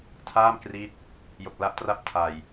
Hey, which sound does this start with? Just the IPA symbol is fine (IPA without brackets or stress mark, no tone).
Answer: tʰ